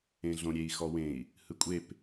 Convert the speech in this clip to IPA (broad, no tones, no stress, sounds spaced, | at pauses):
ẽ ɮ õ ɾʲ e i̯ x ɔ w ẽ i̯ | h ɯ kʷʼ e p